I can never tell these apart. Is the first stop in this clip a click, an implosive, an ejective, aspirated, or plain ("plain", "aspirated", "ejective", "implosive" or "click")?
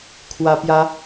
aspirated